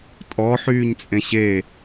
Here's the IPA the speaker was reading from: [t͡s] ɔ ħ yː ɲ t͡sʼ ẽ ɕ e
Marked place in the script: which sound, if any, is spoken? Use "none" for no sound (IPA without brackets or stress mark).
tʼ